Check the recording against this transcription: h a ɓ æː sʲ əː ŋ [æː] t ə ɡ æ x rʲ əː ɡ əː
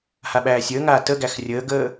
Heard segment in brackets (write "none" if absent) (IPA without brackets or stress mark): aː